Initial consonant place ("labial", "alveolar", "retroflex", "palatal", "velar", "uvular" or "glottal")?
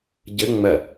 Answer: palatal